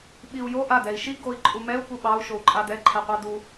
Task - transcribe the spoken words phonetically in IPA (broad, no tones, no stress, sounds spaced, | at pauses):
ɓ i u̯ j o ʔ a d ɛ i̯ ʃ i ɡ o i̯ ǃʼ u m ɛ u̯ p u ɓ ɑ u̯ ʃ o u̯ ǃʼ a d ɛ ǃʰ ɛ qʷ ɑ d u